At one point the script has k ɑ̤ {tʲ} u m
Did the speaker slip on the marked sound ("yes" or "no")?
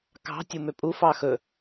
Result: no